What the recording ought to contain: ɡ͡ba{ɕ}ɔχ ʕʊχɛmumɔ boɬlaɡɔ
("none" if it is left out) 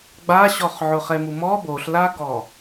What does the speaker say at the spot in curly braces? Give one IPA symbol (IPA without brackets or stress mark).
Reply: ɕ